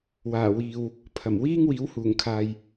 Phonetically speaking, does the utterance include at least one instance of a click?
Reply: no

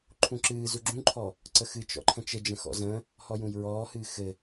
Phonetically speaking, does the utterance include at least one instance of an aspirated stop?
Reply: yes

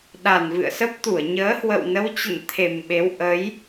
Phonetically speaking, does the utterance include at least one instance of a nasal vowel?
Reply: no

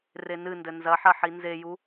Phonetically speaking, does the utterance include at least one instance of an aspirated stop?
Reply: no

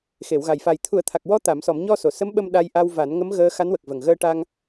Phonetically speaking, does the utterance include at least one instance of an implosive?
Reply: yes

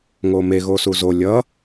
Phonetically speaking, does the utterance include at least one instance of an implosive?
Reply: no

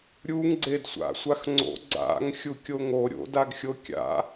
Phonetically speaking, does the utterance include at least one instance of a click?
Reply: yes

